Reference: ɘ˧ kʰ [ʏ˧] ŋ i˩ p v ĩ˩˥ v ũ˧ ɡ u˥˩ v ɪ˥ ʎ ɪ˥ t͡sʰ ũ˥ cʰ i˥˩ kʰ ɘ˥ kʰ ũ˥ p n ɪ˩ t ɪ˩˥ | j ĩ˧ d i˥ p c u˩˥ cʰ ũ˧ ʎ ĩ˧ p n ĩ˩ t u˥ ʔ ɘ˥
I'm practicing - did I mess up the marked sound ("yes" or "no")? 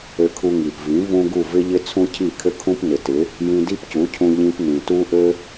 yes